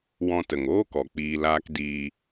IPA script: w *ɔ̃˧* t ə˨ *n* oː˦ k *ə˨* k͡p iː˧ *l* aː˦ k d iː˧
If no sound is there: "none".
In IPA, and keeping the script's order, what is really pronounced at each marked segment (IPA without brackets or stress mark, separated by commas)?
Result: ɔ̃˧, ŋ, ɔ˨, l